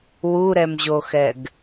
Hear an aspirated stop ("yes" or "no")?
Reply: no